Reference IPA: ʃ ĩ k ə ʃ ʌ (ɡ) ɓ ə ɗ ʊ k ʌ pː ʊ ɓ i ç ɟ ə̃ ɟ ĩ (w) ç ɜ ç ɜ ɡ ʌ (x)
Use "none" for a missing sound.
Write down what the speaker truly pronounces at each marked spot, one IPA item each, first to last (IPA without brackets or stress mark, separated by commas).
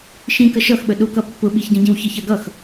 x, w, x